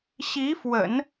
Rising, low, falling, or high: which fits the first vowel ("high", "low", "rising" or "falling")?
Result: rising